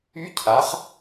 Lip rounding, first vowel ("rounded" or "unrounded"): rounded